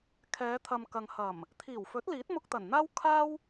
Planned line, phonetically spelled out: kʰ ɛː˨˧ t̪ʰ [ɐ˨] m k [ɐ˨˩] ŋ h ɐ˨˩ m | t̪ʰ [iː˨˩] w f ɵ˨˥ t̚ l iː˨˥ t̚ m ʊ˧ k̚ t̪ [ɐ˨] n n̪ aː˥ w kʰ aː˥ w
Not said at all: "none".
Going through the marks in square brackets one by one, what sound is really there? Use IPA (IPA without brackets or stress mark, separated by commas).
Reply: ɐ˨, ɐ˨, iː˨˩, ɐ˨˩